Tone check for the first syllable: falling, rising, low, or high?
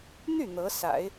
falling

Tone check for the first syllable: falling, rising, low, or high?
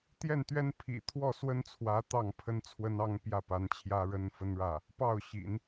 falling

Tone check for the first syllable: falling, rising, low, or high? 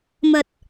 low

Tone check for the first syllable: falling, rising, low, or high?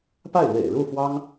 falling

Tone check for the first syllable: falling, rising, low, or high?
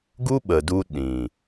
high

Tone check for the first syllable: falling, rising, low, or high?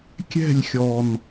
falling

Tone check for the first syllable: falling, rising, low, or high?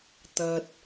low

